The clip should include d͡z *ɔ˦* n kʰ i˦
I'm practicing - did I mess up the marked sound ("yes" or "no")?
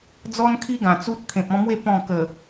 no